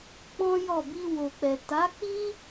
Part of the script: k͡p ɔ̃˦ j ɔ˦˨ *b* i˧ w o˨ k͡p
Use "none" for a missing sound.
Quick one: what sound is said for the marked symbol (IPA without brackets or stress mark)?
b